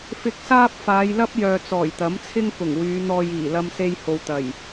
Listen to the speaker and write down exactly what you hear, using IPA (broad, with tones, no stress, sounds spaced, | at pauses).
f ɪ˧ k̚ s aː˥ p̚ f aː˨˧ j l ɐ˥ p̚ j œː˨ t͡s ɔː˨˩ j t̪ ɐ˨˥ m t͡sʰ ɪ˥ ŋ k ʊ˨˩ ŋ w yː˨˧ n̪ ɔː˧ j iː˨˩ l ɐ˧ m s e˧ j h o˨ w t̪ ɐ˨˩ j